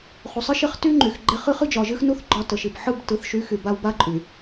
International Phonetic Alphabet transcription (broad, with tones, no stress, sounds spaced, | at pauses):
χ u˨ sˤ ɨ˦ ʃ e˦ χ t y˦ ŋ͡ǃ y˨ x ɡ͡ǃ e˦ χ ɨ˦ χ ɨ˦ d͡ʒ ɒ˨ ʒ ɨ˦ x n u˦ θ ɡ͡ǃ ɒ˦ t ə˨ ʃ i˨ b ħ ɯ˦˨ b t ɯ˨ θ ʃ y˨˦ x y˨ b a˦ w b a˦ ǃʼ y˨